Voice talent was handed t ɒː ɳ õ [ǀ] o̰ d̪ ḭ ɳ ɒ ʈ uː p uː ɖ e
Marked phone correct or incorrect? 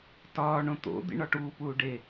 incorrect